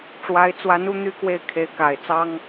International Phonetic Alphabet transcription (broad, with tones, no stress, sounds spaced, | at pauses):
ʈ͡ʂ w a˧˥ ɪ̯ t͡s w a˧˥ n u˥˧ n̪ y˥˧ k w e˥˩ ɪ̯ kʰ e˧˥ ɪ̯ k a˨˩ ɪ̯ t͡s ɑ˥ ŋ